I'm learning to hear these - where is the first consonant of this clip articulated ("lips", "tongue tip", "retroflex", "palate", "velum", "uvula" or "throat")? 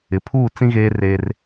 lips